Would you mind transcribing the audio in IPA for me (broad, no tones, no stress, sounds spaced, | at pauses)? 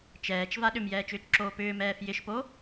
t͡ʃ ɛː t͡ʃ v a ɗ ʏ m j ɛː t͡ʃ ʏː t͡ʃ ǁ oː p ʏː m ɛː f j ɪ ʃ p o